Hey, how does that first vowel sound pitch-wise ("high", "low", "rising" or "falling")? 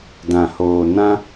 low